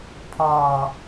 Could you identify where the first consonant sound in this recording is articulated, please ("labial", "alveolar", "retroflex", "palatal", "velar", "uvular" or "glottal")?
labial